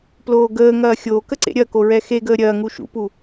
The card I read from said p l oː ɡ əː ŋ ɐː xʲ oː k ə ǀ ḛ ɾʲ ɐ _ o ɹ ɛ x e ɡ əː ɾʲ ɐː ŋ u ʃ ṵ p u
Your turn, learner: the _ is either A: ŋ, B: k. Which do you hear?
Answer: B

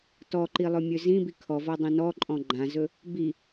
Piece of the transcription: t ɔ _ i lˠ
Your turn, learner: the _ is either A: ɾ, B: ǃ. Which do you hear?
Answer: B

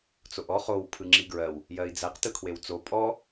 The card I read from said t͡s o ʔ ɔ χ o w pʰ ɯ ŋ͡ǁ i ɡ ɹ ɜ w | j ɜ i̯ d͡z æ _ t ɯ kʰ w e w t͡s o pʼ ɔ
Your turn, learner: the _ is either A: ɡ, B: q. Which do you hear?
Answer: B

